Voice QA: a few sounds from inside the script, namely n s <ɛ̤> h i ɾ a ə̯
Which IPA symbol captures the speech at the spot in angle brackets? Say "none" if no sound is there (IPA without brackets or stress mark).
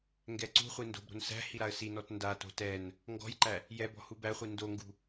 æ̤